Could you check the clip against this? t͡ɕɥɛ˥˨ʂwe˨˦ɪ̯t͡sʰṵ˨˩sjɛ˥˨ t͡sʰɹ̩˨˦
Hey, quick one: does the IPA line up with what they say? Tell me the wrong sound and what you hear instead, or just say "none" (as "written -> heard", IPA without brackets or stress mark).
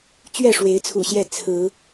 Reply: s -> ɕ